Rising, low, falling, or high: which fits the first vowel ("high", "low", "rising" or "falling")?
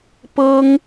high